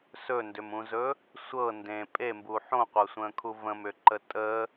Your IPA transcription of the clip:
sɵndʏmũzɵ | sʷɤ ndẽ pʼembuːħ õqʷɤsʷə̃ːkʰu və̃mʏǃə tʼə

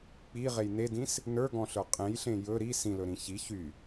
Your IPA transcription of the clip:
k͡piʁej nedĩs | nə˞ɡɔ̃ɬə˞ qʼẽjɬẽ jɵ ɾi sĩlɵɾĩ çi çy

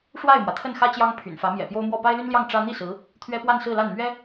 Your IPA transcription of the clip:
ʂwa˥˩ɪ̯mwä˩t̪ʰə˥˩n xä˥ t͡ɕjɑ˥ŋ pʰy̰˨˩nfä˧˥ mjɛ̰˨˩ pjo˥ʊ̯mwɔ˥˩ pa˥ɪ̯ly˥nljɑ˥˩ŋ ʈ͡ʂä˥ n̪i˥˩ sɹ̩˧˥ | t̪ʰɥɛ˥pwa˥˧nsɹ̩˥˧la˥˩n mɥɛ˥

